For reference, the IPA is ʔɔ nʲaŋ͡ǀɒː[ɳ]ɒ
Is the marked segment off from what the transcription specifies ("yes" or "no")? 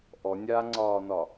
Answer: yes